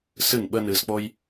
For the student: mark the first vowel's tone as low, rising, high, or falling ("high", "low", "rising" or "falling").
falling